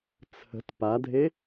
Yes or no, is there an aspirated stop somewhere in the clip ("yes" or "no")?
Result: yes